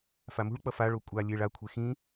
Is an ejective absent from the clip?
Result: no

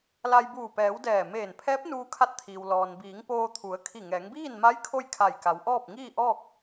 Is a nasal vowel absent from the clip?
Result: yes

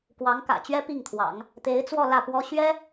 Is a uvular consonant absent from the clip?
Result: yes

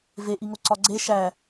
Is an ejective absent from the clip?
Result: yes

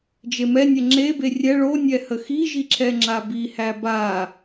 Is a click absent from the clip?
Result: no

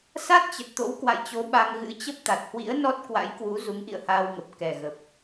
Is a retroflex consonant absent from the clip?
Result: yes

